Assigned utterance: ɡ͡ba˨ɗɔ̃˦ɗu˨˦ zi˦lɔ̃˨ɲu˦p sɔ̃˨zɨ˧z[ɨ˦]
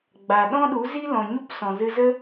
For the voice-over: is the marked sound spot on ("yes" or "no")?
no